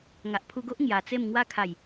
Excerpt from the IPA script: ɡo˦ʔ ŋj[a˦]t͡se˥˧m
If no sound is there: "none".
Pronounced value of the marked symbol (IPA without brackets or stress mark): a˨˩